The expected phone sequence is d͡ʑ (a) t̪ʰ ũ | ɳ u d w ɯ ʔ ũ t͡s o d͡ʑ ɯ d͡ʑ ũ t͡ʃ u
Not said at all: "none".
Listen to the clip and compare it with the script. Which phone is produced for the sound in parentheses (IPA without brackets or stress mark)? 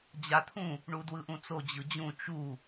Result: a